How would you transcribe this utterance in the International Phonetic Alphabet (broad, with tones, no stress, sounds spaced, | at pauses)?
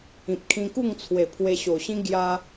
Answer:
ĩ˨ p̚ kʰ ĩ˧ k u˥˧ ŋ t͡sʰ w e˨˩ pʰ w e˧ ɕ o˨˩ ɕ ĩ˦ ɡ j a˦